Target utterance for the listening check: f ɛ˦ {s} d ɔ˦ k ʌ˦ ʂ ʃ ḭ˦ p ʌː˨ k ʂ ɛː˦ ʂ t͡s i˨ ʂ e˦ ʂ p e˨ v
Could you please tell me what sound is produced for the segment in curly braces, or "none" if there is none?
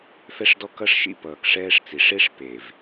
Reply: ʂ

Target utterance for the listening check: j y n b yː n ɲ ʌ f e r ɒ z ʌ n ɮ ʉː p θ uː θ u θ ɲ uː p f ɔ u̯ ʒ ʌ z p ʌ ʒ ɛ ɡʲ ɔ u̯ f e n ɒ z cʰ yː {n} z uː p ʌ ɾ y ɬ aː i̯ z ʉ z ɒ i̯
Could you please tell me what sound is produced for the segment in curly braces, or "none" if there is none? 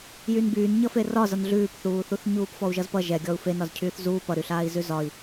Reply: θ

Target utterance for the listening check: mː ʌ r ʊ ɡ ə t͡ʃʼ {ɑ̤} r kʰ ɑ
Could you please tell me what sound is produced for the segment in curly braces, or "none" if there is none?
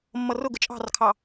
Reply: ɑ̤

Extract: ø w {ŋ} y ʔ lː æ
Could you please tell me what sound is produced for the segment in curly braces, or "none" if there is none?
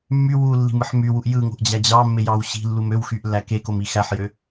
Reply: x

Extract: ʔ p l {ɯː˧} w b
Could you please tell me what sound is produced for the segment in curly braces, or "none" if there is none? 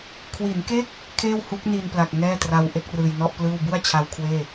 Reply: ɯː˥˩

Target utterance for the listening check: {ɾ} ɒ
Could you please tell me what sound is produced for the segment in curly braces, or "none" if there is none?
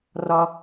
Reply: r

